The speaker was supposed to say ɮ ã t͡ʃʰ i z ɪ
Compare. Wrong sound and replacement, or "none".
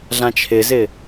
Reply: i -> ɪ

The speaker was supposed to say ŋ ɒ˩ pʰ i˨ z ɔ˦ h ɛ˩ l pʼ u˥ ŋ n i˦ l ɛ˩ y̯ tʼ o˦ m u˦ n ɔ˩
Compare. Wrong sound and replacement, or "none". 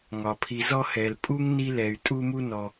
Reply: o˦ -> u˦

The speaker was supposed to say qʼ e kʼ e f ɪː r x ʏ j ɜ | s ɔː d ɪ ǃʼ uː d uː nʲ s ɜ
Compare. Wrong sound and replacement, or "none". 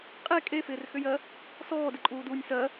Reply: none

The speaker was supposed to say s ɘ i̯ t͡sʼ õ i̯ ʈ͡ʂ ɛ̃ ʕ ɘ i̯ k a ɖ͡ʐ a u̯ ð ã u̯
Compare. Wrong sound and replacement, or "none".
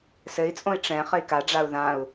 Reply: ʕ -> χ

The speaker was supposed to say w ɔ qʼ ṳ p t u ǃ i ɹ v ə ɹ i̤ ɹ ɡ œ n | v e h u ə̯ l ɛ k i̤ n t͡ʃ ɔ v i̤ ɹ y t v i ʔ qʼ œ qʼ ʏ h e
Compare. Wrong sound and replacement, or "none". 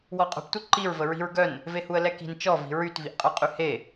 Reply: ʏ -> y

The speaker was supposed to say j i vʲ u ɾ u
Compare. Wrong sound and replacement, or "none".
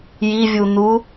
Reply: ɾ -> n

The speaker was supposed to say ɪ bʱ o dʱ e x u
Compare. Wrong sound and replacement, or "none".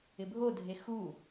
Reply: none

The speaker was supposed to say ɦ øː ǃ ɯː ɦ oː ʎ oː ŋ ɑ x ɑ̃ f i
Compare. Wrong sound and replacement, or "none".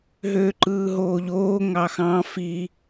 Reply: none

